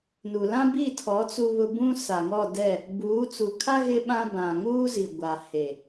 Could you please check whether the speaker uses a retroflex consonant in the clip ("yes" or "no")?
no